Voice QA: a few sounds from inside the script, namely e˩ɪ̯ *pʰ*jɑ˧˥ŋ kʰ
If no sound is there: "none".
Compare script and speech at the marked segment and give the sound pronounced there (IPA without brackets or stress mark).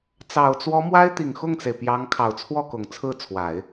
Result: p